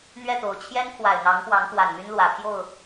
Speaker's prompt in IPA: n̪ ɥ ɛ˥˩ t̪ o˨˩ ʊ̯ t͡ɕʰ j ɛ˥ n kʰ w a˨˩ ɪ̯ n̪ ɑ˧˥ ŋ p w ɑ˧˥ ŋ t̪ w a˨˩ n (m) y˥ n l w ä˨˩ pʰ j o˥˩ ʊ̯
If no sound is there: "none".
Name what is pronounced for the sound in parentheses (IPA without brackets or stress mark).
m